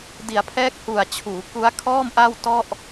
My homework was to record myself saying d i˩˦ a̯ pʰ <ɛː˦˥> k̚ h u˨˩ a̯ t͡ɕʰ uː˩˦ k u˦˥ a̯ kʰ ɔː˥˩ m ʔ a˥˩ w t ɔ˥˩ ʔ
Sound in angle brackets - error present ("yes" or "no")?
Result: no